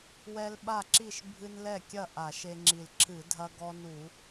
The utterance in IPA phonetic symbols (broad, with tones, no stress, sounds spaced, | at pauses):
w ɛ˦ l ɓ a˥˩ ǁ i˥˩ ʃ bʱ ɨ˦ n l ɛ˥˩ kʲ ɐ˥˩ ʔ a˧˩˧ ʃ e˦ ŋ͡ǁ i˧˩ l ǁʰ ɨ˧˩˧ dʱ ɐ˦ ɡ ɔ˦ n u˧˩˧